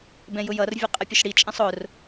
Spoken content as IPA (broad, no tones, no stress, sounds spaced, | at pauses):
b ɛ̃ j ʊ j ʌ r vʲ ʊ qʼ ə pʲ ʊ ʃ ɽ i t͡ʃʼ ɛ̃ sˤ ʊ r